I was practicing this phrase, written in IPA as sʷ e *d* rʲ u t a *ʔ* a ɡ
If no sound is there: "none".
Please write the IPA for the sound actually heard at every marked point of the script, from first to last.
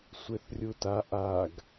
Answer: θ, ʔ

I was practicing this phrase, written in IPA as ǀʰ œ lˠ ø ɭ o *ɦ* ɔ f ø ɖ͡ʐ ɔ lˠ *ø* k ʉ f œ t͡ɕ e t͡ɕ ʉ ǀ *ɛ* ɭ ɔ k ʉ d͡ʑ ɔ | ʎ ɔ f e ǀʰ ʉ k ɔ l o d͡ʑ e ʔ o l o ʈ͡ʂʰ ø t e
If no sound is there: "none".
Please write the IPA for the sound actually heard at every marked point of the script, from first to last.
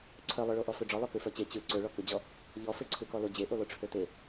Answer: ʔ, ø, ø

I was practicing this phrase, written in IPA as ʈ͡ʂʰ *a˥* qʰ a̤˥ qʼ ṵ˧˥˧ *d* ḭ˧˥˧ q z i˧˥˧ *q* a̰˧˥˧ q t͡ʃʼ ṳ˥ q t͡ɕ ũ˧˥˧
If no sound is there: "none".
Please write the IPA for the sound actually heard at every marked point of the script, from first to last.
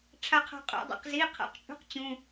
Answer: a˥, dˤ, qʰ

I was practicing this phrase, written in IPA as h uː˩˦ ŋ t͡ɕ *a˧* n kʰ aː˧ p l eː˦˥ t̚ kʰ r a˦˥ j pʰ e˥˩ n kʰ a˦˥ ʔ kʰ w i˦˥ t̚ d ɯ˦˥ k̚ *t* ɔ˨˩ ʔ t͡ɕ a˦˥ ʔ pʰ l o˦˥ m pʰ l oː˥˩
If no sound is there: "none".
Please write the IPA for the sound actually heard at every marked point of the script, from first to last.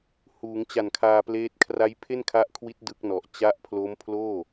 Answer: a˨˩, n

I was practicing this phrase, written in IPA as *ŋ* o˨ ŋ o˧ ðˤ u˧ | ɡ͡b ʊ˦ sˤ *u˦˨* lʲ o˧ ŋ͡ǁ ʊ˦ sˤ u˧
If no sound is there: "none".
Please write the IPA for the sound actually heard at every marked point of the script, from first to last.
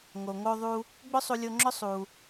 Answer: ŋ, u˧

